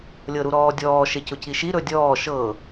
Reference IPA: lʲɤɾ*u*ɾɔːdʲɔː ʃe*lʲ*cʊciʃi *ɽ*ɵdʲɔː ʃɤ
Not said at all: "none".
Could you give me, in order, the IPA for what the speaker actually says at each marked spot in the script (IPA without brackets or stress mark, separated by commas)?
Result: u, none, ɾ